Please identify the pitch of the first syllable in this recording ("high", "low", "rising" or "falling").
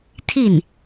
falling